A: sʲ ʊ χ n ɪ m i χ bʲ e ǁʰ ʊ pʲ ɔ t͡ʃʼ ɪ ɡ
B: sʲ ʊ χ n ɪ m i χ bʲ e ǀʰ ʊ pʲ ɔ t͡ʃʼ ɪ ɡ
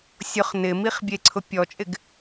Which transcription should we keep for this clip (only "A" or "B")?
B